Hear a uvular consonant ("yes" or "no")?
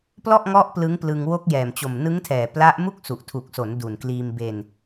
no